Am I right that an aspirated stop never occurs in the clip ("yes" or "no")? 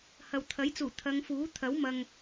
no